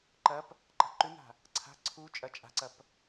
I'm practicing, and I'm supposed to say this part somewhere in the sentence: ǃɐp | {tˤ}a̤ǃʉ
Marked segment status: incorrect: ǃ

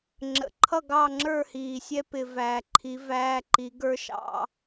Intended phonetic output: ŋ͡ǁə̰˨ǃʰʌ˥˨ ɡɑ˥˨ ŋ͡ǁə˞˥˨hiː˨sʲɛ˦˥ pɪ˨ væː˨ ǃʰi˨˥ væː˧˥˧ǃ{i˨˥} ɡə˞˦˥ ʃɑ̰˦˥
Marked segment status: correct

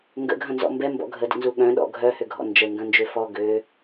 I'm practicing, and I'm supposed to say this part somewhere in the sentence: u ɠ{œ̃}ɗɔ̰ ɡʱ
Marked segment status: correct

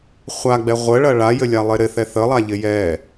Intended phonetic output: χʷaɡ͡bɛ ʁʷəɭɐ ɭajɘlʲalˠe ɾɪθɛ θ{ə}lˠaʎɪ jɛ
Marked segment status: correct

